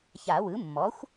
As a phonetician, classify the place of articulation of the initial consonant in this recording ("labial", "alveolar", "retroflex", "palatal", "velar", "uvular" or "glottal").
palatal